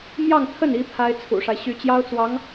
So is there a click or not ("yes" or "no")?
no